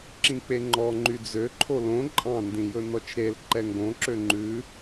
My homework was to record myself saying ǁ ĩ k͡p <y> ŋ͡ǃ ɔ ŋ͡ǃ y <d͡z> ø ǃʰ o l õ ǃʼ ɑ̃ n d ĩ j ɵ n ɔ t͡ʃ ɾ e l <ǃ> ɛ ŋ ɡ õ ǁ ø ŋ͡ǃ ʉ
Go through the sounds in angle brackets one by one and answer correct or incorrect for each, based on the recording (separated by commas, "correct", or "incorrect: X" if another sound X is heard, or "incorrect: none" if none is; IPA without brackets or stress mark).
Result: incorrect: e, correct, correct